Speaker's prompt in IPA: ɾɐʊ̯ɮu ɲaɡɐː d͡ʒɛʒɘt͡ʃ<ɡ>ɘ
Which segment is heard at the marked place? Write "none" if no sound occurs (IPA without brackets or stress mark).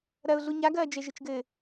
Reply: ɡ